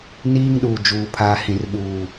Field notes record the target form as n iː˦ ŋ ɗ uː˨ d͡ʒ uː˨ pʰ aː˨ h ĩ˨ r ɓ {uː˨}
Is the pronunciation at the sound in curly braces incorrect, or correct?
correct